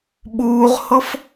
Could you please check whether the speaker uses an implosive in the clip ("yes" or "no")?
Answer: yes